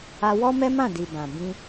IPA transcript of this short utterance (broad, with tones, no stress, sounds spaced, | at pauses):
a˧ w ɔ˦ m ɛ˦ m ã˦˨ d i˨ b ã˨ b ĩ˧